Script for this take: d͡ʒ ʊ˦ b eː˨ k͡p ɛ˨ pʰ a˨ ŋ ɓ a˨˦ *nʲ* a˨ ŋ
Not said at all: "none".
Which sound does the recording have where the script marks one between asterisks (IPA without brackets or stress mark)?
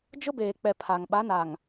n